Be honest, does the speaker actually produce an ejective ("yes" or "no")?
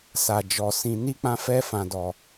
no